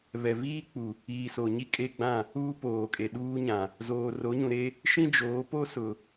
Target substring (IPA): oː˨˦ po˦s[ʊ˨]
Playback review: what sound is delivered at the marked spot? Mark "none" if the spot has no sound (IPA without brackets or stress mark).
ʊ˨